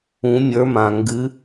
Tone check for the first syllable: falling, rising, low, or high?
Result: rising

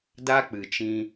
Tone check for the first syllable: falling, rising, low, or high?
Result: high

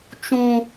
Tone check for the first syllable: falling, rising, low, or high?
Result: high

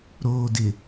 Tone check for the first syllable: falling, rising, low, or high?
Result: low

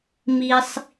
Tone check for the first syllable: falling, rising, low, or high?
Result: high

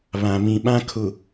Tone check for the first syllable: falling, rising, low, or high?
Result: low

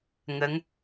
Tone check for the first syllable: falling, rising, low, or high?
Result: rising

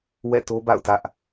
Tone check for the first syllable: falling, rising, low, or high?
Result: falling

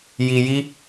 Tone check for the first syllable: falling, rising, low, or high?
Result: low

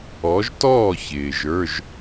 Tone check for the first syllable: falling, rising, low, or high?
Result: rising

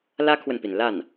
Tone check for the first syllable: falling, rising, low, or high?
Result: high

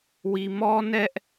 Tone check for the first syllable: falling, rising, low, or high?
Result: low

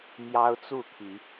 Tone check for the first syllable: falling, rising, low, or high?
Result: high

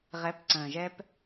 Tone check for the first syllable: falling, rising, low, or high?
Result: rising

